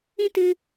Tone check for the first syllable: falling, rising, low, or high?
high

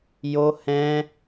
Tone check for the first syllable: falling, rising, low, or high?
high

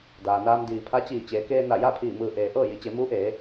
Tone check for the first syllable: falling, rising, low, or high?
low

